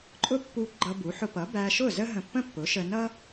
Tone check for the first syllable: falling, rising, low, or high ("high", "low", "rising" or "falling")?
high